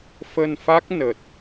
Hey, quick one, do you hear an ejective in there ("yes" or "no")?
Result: no